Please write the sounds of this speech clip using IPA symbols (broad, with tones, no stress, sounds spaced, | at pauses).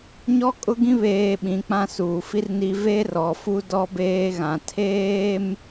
ɲ ɔ˦ kʼ ʊ˦ ɡ ĩ˦ β eː˨ ɓ ĩ˨˦ k͡p ã˦ s uː˨ f i˦ r n i˦ v e˦ r ɔ˨ f u˦ d ɔ˦ b eː˦ ɣ ã˨ tʰ eː˦ m